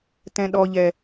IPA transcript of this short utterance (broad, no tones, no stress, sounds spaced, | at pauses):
t ɛ̃ ɗ ɔ ʎ ɛ